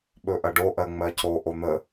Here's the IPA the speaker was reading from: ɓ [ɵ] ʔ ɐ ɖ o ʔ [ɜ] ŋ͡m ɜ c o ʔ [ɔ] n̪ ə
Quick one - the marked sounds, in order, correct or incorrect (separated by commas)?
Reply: correct, correct, incorrect